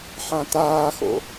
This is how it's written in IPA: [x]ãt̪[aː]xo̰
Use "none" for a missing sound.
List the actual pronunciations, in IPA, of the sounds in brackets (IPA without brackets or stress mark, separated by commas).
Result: ħ, aː